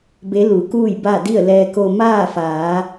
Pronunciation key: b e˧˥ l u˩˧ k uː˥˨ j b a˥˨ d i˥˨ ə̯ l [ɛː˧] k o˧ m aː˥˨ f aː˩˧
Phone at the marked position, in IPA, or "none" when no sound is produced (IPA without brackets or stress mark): ɛː˧